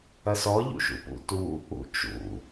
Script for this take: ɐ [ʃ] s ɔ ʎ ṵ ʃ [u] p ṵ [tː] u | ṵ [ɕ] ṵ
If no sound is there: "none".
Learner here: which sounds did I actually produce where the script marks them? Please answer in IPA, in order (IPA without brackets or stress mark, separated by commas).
none, ṵ, t, t͡ʃ